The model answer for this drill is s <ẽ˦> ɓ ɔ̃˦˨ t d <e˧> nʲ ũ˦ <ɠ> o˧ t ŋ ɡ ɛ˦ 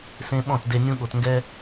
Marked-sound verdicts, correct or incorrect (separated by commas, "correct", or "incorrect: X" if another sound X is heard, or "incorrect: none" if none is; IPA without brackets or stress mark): correct, correct, correct